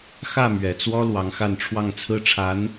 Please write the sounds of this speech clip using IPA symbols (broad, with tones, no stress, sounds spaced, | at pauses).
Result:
x ä˥˩ m ɥ ɛ˨˩ t͡s w ɔ˥ l w ɑ˧˥ ŋ x a˥˧ n ʈ͡ʂʰ w ɑ˥˩ ŋ t͡sʰ ɹ̩˥ ʈ͡ʂʰ a˧˥ n